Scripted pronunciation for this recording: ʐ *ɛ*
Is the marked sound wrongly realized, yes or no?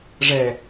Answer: no